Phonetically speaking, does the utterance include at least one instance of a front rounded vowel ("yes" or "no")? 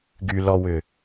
yes